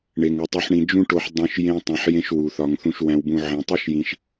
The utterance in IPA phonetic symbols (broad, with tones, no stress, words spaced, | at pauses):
ɳe˩ŋu˩ tˤu˨ħɳĩ˨ d͡ʒũ˦ʈo˨ħ dˤõ˥ʃ jẽ˦ tˤẽ˨ħjẽ˦ʃwu˩θɒ˨ŋ θũ˨ʃwæ̃˨wbũ˨ ʕẽ˨ tˤi˥ʃjĩ˨ʃ